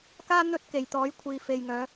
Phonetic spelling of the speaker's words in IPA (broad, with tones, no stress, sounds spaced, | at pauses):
k aː˥ n̪ ɵ˧ t̚ k e˨˩ j t̪ ɔː˨˥ j kʷʰ iː˨ f e˨ j ŋ œː˨˧